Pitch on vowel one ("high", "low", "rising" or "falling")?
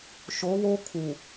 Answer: rising